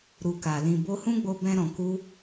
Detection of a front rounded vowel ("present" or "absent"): absent